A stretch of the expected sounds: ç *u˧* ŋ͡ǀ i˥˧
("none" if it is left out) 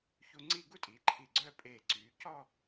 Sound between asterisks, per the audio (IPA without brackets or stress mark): u˧